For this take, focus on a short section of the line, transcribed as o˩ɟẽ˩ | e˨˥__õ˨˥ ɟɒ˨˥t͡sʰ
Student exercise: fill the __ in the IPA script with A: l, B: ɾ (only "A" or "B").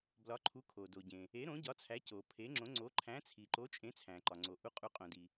B